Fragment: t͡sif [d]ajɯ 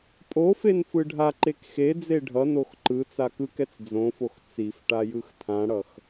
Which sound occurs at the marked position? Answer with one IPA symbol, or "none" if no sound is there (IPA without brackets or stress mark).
ʈ